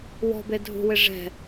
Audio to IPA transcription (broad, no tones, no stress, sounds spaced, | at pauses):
w ɔ̤ b e dʱ ṳ w ɪ ʐ ɛ̤